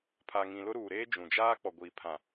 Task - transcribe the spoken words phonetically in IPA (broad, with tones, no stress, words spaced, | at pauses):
pʰa˨ŋĩ˨lʊ˦ ɾuː˨ɾeː˦ d͡ʒũ˨ d͡ʒaː˦ k͡pɔ˨ɡʷiː˨pʰã˨